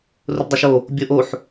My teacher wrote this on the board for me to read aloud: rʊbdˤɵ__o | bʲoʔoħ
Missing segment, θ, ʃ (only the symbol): ʃ